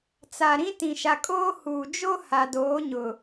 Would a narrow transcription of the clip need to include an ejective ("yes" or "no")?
yes